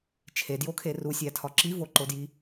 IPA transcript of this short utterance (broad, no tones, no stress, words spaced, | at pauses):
t͡ʃʰedjokʰe rusʲætʰɒ ǁivoǃodji